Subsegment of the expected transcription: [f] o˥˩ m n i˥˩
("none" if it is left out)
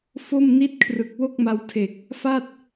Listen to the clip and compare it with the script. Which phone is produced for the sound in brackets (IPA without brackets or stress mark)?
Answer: f